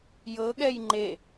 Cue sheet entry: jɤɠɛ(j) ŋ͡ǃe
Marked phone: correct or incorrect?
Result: correct